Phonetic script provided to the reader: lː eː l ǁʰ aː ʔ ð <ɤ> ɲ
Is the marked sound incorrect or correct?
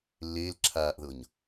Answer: correct